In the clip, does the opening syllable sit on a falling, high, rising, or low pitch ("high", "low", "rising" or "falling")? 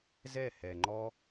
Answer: falling